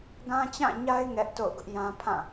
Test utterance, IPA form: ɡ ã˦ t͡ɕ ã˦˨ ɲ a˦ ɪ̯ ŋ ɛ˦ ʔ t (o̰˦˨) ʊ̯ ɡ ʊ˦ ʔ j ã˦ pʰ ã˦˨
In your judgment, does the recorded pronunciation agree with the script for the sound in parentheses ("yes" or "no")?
yes